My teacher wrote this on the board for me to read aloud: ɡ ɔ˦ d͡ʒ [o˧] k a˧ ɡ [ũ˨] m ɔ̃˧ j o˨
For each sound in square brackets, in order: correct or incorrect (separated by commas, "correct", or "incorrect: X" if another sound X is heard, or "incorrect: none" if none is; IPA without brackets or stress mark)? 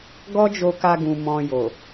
correct, correct